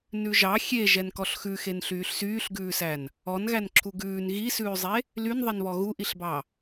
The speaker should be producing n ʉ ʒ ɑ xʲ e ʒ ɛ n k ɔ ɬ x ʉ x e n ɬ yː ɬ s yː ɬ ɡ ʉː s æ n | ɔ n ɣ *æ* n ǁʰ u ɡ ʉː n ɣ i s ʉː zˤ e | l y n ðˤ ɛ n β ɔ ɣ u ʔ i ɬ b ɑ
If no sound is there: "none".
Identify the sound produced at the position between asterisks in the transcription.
æ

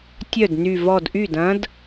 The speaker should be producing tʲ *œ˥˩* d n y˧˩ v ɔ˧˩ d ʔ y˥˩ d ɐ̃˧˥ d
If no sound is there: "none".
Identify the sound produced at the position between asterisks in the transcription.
œ˥˩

